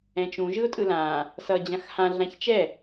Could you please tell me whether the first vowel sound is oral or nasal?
nasal